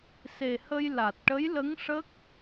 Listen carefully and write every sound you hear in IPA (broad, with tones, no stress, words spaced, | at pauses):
se˨˩hə˧j la˨˩t̚ʈə˧˥jlə˧˥ŋ ʂə˦˥k̚